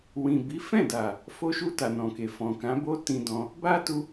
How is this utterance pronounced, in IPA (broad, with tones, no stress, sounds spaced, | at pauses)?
w ĩ˨ b i˨˦ f ɛ̃˦˨ d a˨ | f o˧ ʃ u˧ t a˨ n ɔ̃˨ k e˨ f ɔ̃˨ k ã˨˦ b o˦ t ĩ˧ d ɔ̃˧ | b a˦ t u˧